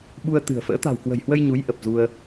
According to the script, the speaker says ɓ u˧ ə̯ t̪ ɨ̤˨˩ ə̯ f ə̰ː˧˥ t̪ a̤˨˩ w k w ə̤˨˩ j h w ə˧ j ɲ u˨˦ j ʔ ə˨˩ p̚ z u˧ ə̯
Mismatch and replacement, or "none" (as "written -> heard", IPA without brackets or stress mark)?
none